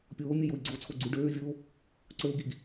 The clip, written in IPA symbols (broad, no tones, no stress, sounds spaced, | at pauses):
pʲ oː mʲ ɛ j o i̯ ɡ͡ǀ o t͡sʰ o ɡ͡ǀ y ɖ øː vʲ oː | ǀ ə˞ u̯ ɡ i ɡ